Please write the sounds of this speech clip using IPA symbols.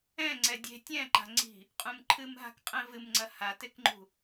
ɛ̃ ŋ͡ǀɛdʲe̤ tʲɛ̃ǃa̤ŋ͡ǀi̤ | qʼũmǃʰɨmɦa̤kqʼɛ̃ vɨmŋ͡ǀɐ hatekŋ͡ǃṳ

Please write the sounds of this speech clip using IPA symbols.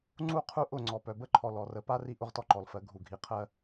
ŋ͡ǀu˦ qʰu˦ʔʊ˦˨ ŋ͡ǀɔ˨pœ˨bə˦ǃʰɔ˨ lɔ˨rə˨˦ pa˦ri˦ ʔʊ˦ʁtɔ˦ǃɔ˨lfɜ˨˦ ɡʱu˨ɡʱi˨qʰɜ˦

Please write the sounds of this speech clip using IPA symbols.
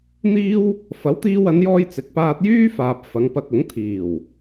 n̪iː˥w | fɐ˨˥wt̪iː˧wɐ˨˧njɔː˧j t͡sɪ˨˥k̚paː˧t̚jyː˥faː˨p̚ fɐ˨˧ŋpɐ˧k̚ʊ˨˥ŋ t̪ʰiː˨˩w

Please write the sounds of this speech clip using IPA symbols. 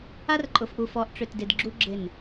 a˦rǃʼʊ˨fʔu˨fɔ˨˦ʔ ʈ͡ʂʏ˨tdɪ˨dɡ͡ǁu˦ ɡ͡ǁɪ˦˨n

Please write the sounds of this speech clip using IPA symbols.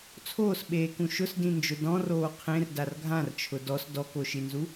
t͡sʰoːsɓeːkũ ʃʊsdĩnd͡ʒʊ dɔ̃roː qʰẽrdar ɡʱãrt͡ʃʰʊ dɔs dɔkoʃinzu

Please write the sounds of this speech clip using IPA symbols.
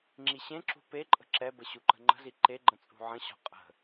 ŋ͡ǁiɕẽǁṳ peǃʼə̤ ǁɛbə ɕuǃə̤ŋ͡ǃə̤zi ǃeɡ͡ǃə̃ t͡sʼṳʕə̃ɕɔ̤ qʼə̤

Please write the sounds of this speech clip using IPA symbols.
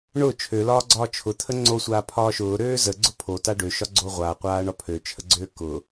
ɳʊ t͡ʃʰølɒːɡ͡ǀɒː t͡ʃʰʊt̪ʰə ŋ͡ǀosʷaː pʰɒːʃʊː ɾøːzə ɡ͡ǀʊpʰota ɖøʃɒ ɡ͡ǀoʁʷaqʷaː ɳɒpʰøt͡ʃʰəɡ͡ǀøː kʊ

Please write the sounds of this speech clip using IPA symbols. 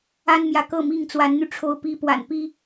a˦nmjä˨kɤ˥˨ mi˥˨ŋt͡swa˨˦nn̪y˧ ʈ͡ʂʰo˦ʊ̯pi˦ pwa̰˨˩npi˦

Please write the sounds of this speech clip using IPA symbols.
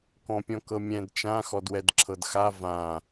kɔ̃pʲɔ̃kɤmʲɛ̃d t͡ʃã xɔdwɛdǁʰɤdxa vã

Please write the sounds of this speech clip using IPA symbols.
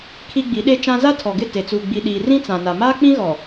kʰi˦ɡ͡bi˨˦ ɗe˦t͡ʃã˦ za˦tʰɔ˨ɡɪ˦˨ te˨t͡suː˨ ɡ͡bi˨ɗiː˨rĩ˦ t͡sã˨na˨ maː˦k͡pĩ˦ɣɔ˨

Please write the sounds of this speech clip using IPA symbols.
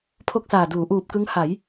pʰo˥˩k̚saː˨˩duː˩˦ ʔuː˨˩p̚kɯ˦˥ŋ ha˩˦j

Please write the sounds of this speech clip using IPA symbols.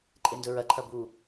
ǃʼendɵɹɐǃʰɐ bu

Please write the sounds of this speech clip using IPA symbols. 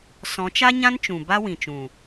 sɔ̃˨˦t͡ʃa˦ɲã˦nt͡ʃũ˨ ba˦wĩ˨t͡ʃũ˨

